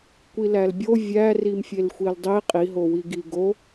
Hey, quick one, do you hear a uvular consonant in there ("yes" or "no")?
yes